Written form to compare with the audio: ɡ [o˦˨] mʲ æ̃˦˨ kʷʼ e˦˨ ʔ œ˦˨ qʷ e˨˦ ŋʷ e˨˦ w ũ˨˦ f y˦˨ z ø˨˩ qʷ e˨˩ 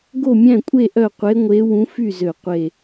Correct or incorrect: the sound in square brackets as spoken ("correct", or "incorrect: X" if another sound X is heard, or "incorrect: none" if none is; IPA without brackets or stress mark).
correct